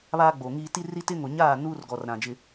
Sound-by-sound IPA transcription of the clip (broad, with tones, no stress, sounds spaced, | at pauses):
β aː˦ ɡ͡b o˨ ŋ iː˦ t i˦ r i˦ t ɪ˦ ŋ o˨ ɲ aː˦˨ n uː˦ r ɡ ɔ˨ r ɾ ã˨ d͡ʒ ɪ˦